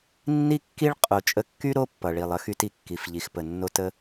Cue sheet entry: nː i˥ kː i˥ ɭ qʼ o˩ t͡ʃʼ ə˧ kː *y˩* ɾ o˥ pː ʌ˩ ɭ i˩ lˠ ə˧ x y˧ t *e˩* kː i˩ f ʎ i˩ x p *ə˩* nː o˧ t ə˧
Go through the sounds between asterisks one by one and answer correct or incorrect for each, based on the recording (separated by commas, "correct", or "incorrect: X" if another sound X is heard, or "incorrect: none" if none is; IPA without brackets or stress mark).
incorrect: y˥, incorrect: i˩, correct